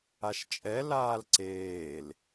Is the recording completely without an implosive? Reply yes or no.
yes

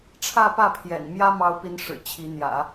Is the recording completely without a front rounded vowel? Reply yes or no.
yes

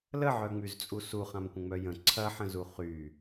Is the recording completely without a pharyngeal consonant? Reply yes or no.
no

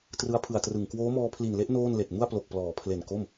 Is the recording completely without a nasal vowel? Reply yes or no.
yes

